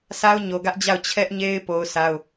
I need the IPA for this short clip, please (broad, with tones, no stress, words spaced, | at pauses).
sʰa˦ʊ̯ɲo˨ɡä˦ʔd͡ʑa˦˨ʊ̯ t͡ɕʰɛ˦ʔɲe˦ɪ̯ po˦ʊ̯sa˦ʊ̯